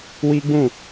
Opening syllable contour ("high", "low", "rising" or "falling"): high